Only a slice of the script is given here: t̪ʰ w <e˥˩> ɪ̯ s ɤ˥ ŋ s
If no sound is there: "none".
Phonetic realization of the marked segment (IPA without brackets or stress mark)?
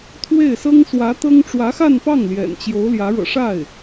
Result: e˥˩